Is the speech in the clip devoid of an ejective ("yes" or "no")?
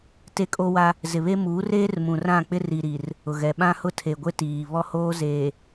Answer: no